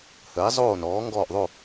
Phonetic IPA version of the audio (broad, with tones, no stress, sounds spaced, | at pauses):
h əː˩˥ ɪ̯ zˤ oː˥˨ n ɔː˩˥ ŋ ɡ ɔː˥˨ ʔ ðˤ o˥˨